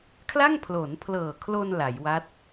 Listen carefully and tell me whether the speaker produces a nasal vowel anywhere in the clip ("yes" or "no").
no